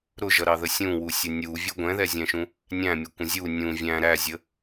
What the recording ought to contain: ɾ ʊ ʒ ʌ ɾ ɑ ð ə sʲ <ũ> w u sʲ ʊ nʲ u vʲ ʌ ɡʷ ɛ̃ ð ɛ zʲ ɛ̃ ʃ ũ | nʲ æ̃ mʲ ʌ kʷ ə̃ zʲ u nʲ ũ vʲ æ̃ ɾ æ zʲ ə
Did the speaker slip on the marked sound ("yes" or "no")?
no